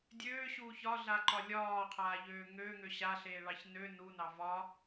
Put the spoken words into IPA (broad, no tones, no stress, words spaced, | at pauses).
dʲøːɕuː çɒɮaǃɒ lʲɒːqʰaːʎøː ŋøːŋø ɕaɬeːɭɑç nø nunɑ vɒ